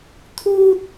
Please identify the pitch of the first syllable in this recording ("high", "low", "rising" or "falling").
high